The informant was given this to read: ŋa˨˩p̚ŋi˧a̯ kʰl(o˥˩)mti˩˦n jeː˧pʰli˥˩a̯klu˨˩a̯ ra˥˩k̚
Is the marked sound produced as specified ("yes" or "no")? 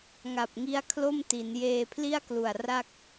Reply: yes